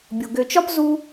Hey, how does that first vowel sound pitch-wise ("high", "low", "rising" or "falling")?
low